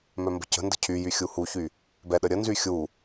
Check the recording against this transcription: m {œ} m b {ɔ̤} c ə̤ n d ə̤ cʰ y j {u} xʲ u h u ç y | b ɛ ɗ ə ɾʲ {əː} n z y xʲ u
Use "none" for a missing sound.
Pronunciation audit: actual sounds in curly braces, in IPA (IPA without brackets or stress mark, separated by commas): œ, ə̤, y, ə